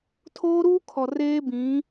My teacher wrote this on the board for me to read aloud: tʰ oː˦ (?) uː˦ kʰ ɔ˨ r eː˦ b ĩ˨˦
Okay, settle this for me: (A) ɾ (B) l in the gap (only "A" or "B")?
A